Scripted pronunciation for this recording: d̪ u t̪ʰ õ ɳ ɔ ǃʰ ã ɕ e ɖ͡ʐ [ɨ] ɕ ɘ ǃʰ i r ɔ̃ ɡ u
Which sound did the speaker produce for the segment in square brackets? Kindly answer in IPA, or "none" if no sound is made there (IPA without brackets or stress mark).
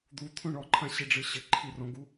ɨ